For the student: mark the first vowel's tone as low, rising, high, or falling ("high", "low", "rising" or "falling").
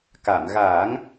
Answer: low